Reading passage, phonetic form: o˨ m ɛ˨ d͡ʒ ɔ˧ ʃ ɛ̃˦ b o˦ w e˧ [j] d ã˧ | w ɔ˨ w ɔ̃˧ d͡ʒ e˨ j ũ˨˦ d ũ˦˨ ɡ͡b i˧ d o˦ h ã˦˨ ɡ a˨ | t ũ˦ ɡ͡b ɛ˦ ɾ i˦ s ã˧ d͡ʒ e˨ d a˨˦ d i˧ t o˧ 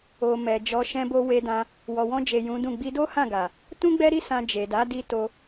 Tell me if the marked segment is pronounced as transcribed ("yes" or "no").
no